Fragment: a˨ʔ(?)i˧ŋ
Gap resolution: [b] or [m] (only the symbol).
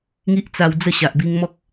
b